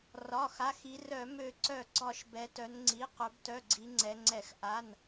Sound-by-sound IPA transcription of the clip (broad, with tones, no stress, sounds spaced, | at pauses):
r ɒ˩˧˩ x a˩˧˩ x i˩˧ r œ˧˩˧ m ø˧˩˧ ǀ œ˧˩˧ ɡ͡ǀ ɒ˧˩˧ ʃ b ɛ˩˧ t œ˩˧ n ŋ͡ǀ i˩˧˩ q œ˩˧ b t œ˩˧˩ ɡ͡ǀ i˩˧ ŋ͡ǀ ɛ˩˧ ŋ͡ǀ ɛ˧˩˧ x ʔ a˩˧˩ n